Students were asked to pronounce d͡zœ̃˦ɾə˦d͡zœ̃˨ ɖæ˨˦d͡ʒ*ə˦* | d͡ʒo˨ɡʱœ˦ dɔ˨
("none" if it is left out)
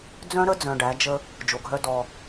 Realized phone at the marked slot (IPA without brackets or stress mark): ə˦